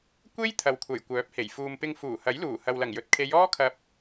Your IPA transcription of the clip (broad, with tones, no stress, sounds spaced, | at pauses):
kʷ e˥ j t̪ʰ ɐ˨ w kʷʰ ɐ˨˩ j kʷ œː˨˥ p̚ h e˨˩ j f uː˨ m p ɪ˧ ŋ f uː˨˩ h ɐ˨˥ j l uː˨˩ h ɐ˨ w l ɐ˨˩ ŋ j ɵ˨˥ t̚ kʰ e˨˧ j ɔː˥ kʰ ɐ˧ p̚